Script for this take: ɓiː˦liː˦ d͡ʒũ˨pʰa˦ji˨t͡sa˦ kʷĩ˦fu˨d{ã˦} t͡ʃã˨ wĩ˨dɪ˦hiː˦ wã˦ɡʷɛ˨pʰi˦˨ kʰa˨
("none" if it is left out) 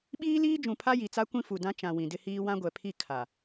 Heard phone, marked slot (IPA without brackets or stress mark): ã˦